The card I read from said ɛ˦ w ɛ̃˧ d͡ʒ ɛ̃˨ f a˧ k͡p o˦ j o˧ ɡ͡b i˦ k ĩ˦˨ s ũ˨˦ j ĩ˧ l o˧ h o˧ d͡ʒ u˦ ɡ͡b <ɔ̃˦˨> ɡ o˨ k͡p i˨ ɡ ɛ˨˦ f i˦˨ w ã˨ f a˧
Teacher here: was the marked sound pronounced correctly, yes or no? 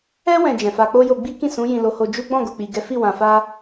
yes